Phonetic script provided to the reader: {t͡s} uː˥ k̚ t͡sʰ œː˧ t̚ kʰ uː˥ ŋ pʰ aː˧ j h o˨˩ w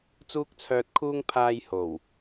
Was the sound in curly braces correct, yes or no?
yes